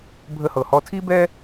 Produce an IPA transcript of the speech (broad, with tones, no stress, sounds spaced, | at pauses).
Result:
bʱ ə˥ h ɤ˧ h ɔ˥ tʰ i˥ b ɛ˥